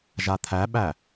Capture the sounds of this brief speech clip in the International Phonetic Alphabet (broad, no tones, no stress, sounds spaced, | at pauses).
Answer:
ʒ a t̪ʰ æ ɓ æ